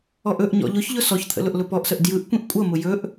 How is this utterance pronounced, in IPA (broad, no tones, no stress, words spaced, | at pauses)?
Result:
ɔʔɵʔɲɔ̰ ʎʊçʎʊ sɔçt̪ʰə̰ lʊʔlʊpɔʔsəʔ djɯʔ kʷĩʔkʷʼʌmʊ jɵʔ